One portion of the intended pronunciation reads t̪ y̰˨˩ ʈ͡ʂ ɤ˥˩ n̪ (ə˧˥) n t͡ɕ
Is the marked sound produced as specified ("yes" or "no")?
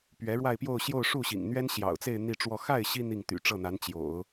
no